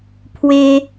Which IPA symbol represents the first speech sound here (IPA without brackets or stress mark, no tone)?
pʰ